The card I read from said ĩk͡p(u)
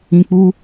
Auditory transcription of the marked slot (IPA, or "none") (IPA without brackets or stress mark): u